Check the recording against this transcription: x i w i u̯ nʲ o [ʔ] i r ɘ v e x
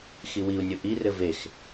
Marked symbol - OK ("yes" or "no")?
yes